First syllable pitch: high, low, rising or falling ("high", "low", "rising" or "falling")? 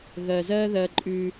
low